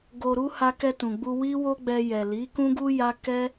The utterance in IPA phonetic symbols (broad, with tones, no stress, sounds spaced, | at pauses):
ɡ o˨ ɾ u˧ h a˧ k ɛ˧ t ũ˨ ɡ͡b u˧ w i˦ w o˦ ɡ͡b ɛ˧ j ɛ˨ l i˨˦ k ũ˦ ɡ u˦ j a˦ k ɛ˦